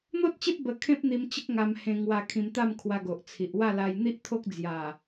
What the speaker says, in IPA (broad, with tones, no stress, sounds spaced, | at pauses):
n̪ o˦ t̚ t͡ɕ e˦ p̚ b ə˧ kʰ ẽ˦ p̚ n̪ i˧ m t͡ɕ ə˦ k̚ ŋ a˧ m h ẽ˧ ŋ w a˧ kʰ ĩ˧ m t̪ a˥˧ m kʰ w a˧ ɡ o˨ ʔ t͡sʰ i˨ ʔ w a˥˧ l a˧ j n̪ i˦ ʔ t̪ʰ o˦ k̚ d͡z j a˨˩